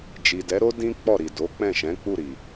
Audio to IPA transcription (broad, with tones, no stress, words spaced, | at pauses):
d͡ʒi˨dɛ˨˦ɾo˦ dĩ˦ k͡pɔ˦˨ɾi˨ do˨˦k͡pɛ̃˦˨ʃɛ̃˨˦ k͡pu˦˨ɾi˨